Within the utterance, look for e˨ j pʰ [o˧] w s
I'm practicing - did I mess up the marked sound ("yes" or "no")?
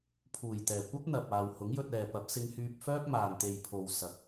yes